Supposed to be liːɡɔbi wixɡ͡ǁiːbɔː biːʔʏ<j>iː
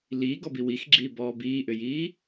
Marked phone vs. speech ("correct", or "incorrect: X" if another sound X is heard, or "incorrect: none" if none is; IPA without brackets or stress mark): correct